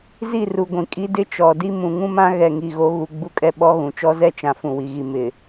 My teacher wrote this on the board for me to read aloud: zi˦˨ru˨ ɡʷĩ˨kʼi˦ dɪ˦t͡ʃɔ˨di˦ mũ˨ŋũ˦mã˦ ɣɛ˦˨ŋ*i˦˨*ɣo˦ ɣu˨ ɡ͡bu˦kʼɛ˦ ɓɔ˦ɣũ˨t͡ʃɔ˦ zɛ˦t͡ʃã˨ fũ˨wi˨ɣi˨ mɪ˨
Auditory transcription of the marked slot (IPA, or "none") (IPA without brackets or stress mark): i˦˨